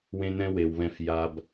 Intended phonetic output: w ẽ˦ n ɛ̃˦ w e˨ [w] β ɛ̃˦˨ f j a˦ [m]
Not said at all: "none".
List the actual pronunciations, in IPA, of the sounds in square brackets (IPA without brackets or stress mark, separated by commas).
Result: w, b